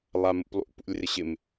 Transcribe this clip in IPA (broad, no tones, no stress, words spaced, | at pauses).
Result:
lˠamṵplˠṵ pṵlʲrɪɕɪm